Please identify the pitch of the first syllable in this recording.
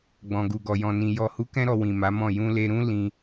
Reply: low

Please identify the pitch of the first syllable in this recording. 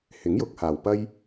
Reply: rising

